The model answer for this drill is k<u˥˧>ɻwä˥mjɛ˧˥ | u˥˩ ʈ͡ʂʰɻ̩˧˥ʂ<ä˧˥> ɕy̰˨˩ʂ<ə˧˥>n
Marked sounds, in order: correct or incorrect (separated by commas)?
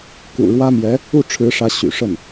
incorrect, correct, incorrect